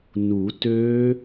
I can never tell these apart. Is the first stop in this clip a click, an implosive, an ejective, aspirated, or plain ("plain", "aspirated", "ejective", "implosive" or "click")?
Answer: plain